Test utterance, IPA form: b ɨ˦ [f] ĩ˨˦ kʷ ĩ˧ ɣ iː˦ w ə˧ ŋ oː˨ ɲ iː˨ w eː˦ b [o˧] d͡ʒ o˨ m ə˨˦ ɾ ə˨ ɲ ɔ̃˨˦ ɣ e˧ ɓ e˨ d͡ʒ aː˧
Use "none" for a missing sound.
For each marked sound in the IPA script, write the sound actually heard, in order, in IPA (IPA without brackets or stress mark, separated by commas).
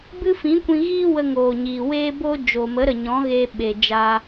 f, o˦